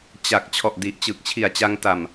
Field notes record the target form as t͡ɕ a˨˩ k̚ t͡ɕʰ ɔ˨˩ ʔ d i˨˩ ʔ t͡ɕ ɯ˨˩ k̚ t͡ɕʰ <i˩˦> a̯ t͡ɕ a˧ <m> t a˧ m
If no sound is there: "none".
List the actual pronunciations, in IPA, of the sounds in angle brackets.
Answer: i˨˩, ŋ

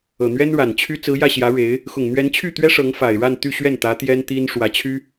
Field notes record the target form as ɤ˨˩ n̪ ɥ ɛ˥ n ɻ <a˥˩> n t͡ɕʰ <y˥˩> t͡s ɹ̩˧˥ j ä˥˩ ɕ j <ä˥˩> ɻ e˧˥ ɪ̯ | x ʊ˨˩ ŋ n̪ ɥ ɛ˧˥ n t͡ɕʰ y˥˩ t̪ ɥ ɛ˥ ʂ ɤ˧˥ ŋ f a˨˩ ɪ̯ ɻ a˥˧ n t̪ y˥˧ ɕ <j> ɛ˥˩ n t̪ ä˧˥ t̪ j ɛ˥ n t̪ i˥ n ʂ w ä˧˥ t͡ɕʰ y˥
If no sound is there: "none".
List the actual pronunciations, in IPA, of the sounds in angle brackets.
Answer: a˨˩, y˥, ä˧˥, ɥ

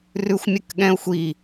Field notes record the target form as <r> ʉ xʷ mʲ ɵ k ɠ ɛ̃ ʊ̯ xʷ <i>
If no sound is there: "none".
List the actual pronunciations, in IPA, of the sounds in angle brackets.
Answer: r, i

